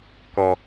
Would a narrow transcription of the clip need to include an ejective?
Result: no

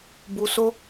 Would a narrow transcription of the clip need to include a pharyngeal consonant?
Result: no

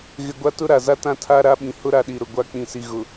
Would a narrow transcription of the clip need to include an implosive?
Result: yes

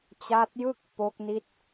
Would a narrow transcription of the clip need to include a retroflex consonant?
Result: no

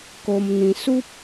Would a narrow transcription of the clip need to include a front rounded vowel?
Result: no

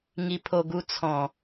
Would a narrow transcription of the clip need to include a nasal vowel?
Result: yes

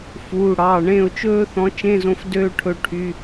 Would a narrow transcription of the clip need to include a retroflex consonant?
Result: yes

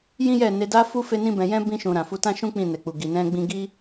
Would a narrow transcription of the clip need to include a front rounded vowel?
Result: no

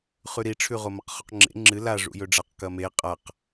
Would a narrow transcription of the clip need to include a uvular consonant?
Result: yes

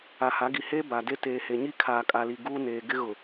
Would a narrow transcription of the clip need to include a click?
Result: no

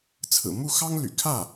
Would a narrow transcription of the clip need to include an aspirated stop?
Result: yes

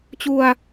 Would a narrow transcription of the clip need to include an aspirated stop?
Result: no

